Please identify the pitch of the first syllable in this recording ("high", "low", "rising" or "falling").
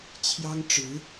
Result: high